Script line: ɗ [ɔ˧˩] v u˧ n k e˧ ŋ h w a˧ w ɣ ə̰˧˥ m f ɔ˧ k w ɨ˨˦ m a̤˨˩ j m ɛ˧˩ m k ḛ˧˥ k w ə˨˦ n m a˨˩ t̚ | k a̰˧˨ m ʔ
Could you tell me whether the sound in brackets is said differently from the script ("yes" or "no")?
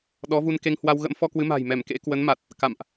yes